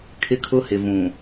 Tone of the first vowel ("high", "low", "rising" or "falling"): high